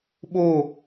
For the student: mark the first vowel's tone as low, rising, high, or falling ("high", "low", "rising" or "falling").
falling